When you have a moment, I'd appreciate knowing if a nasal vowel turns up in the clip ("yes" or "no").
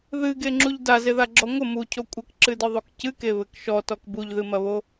no